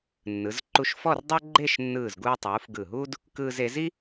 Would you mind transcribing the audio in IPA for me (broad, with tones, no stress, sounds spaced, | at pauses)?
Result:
nː ɯ˩˧ z ǃ u˧ ʃ f ɔ˥˧ r dˤ ɤ˥ ɡ͡ǃ e˥˧ ʃ nː ɯː˧˩ z ɡ uː˧ tˤ uː˩˧ f ɡ ɯ˧˩ ɦ uː˥ d | k ɯː˧ z e˩˧ z i˥